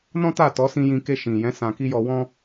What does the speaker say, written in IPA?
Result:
nɔ̃˦ta˦˨tɔ˨˦sĩ˧ jĩ˧ke˧ ʃĩ˨jɛ̃˨˦ sã˧ki˦jɔ˧wɔ̃˦

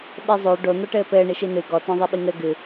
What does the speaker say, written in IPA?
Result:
ɓezˤo ɖo n̪ɔʈɘːpɘː ɳiʃinɨ ɡɔ tɔ̃ðˤiɓiŋɘ ɡɨ

